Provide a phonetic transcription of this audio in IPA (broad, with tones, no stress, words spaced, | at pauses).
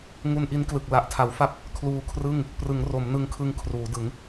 ŋu˧nʔi˦˥nklɯ˨˩k̚ la˨˩ʔtʰa˩˦wfa˥˩p̚ | kʰluː˧kʰrɯ˥˩ŋ | prɯ˩˦ŋro˩˦m nɯ˧ŋkʰɯ˧ŋ kʰruː˩˦dɯ˩˦ŋ